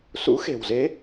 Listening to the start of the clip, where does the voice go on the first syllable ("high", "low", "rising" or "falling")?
rising